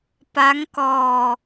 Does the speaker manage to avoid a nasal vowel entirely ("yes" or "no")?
yes